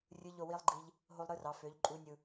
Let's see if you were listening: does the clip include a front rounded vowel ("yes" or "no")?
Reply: yes